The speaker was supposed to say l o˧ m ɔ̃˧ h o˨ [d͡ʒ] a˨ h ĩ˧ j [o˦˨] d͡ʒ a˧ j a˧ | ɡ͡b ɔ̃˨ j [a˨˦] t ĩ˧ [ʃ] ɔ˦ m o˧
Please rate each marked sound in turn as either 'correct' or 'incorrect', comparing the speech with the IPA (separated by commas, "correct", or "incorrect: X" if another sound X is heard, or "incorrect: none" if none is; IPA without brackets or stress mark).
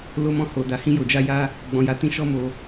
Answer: incorrect: d, incorrect: o˨, correct, correct